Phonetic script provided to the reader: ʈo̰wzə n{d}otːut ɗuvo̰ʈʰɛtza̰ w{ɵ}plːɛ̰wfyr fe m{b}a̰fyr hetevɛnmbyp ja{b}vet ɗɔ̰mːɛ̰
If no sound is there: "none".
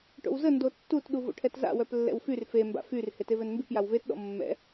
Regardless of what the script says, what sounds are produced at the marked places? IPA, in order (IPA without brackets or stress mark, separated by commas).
d, œ, b, w